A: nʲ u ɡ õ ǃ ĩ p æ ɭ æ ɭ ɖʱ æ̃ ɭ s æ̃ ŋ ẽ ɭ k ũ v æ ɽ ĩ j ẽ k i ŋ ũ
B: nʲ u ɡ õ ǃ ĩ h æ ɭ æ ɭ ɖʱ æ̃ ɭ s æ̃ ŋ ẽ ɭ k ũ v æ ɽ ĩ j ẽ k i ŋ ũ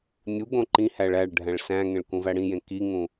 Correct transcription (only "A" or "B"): B